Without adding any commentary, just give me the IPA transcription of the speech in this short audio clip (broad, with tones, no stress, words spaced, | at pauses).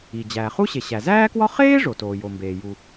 i˩ d͡ʑæː˩χu˥ ɕe˩ɕæ˩zæː˥kwɒ˥ χeː˥ ʐo˩toː˩jo˩mbeː˩ ju˩